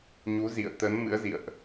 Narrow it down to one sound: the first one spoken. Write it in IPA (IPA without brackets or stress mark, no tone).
ɲ